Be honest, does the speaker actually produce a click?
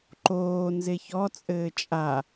yes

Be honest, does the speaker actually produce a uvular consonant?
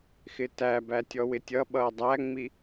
no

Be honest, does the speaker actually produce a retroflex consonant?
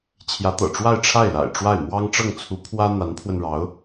yes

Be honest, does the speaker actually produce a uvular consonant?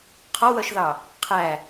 yes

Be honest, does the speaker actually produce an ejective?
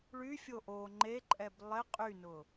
yes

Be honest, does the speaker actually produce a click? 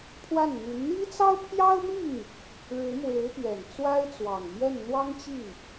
no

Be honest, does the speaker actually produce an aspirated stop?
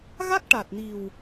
no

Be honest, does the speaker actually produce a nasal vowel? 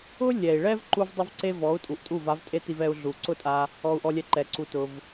no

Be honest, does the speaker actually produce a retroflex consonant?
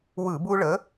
yes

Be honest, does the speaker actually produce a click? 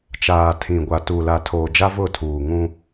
no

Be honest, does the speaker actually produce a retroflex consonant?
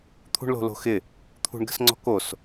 yes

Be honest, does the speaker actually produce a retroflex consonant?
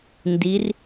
no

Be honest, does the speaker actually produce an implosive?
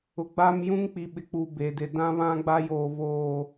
yes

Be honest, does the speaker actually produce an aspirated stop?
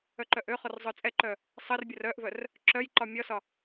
no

